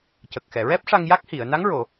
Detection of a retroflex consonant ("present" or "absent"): present